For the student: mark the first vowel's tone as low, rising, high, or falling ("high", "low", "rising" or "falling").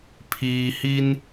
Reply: low